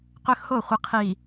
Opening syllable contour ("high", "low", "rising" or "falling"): high